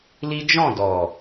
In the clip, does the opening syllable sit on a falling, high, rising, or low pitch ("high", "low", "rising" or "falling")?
high